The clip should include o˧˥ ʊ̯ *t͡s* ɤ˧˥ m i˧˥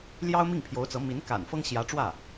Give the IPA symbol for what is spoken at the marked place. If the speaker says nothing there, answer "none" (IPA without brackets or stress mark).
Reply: t͡s